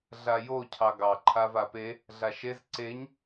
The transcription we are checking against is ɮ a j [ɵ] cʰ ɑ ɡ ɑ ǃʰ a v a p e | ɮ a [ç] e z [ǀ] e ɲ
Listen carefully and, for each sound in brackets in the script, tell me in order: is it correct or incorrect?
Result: incorrect: o, incorrect: ʃ, correct

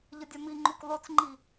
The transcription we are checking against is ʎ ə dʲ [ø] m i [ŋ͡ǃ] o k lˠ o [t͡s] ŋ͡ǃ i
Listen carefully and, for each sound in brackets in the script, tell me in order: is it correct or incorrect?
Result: incorrect: œ, correct, correct

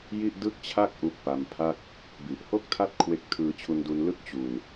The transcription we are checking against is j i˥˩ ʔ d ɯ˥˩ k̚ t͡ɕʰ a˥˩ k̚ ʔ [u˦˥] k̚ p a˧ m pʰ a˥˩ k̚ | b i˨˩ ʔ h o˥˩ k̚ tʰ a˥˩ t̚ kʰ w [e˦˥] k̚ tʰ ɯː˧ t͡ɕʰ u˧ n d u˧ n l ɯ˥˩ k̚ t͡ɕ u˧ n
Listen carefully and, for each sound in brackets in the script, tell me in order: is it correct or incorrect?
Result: correct, correct

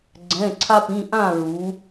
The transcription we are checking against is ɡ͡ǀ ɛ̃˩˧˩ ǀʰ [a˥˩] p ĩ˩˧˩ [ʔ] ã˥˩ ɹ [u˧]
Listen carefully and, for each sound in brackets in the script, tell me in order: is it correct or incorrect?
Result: incorrect: a˧, correct, incorrect: u˩˧

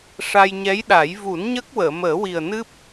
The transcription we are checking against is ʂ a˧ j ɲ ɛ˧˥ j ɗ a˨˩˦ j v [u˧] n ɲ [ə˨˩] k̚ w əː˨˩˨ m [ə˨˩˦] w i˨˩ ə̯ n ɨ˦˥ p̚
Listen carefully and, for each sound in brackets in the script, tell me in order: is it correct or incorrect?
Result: incorrect: u˨˩˦, incorrect: ə˦˥, incorrect: əː˨˩˦

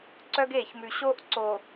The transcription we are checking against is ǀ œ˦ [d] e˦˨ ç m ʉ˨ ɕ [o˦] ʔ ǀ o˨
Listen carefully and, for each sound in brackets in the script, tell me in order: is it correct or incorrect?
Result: incorrect: ɡ, correct

